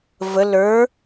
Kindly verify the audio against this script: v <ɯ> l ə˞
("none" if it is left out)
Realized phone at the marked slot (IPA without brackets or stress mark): ə